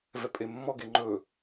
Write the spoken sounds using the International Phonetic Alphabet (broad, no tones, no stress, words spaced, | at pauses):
vɛpʼemːɔɡe ŋ͡ǃɵ